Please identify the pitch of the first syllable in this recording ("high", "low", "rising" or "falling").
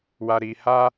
low